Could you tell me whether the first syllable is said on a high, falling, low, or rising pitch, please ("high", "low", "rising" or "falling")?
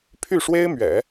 falling